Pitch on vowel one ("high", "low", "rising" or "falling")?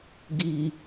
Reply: low